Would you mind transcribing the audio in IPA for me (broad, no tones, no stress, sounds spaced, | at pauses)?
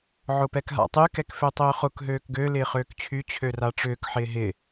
ʕ ʊ p ɛ k ɦ a̰ tˤ y k ɛ k f ø tˤ ʏː χ ʊ k ɦ øː k ɡ ø l ɪː χ øː k t͡ɕʰ y t͡ɕʰ ø r a ʈ͡ʂ ʏː k ħ ɪː ɦ ɪ